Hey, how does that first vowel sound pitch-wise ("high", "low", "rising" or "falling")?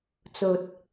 low